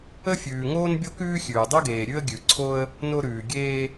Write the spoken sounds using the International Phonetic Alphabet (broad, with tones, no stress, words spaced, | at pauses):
ə˥fʲʉː˩ŋoː˥n bʲo˥kʉː˥xʲʉː˩ dˤʉ˥ɡeː˩ ɾʲʉ˥ə̯ ɡʲʉ˩ǀʰo˥ə̯ | no˥ɾʉː˩ɡʲeː˥